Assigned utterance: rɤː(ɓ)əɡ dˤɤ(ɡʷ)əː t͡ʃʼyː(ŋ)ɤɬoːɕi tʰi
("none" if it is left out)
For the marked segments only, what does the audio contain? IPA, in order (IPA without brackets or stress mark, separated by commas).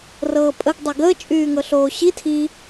pʼ, ɡ, ŋ